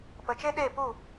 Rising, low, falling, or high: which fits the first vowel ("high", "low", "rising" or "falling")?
low